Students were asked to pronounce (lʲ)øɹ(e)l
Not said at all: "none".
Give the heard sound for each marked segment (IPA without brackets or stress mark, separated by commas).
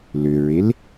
l, e